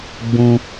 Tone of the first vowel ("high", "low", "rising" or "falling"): high